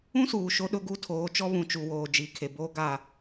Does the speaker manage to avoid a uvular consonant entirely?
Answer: yes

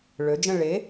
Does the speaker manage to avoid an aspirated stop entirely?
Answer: yes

